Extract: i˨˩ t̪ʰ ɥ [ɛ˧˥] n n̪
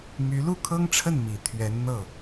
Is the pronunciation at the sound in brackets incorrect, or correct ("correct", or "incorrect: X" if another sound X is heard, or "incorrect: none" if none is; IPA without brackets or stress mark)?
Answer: correct